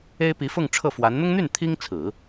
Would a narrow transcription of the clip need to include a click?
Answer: no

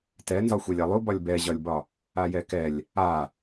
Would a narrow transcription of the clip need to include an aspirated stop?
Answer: no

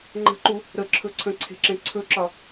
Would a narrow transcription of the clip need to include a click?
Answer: yes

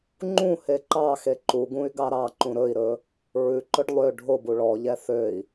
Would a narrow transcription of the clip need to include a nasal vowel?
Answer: yes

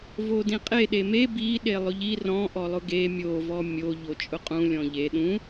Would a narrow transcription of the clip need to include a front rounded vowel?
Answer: no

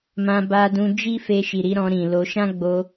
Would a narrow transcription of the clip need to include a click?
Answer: no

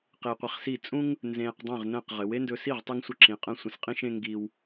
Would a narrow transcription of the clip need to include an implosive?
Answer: no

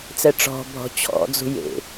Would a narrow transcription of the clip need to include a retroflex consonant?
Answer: yes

